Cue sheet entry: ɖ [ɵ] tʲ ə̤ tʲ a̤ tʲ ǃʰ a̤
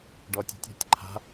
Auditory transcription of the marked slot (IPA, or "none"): ɔ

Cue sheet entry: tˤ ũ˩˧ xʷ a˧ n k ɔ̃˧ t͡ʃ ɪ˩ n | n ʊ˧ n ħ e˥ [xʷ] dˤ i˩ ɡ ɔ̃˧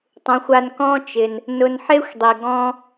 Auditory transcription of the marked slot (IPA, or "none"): xʷ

